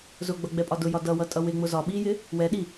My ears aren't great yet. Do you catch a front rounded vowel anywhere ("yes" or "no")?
no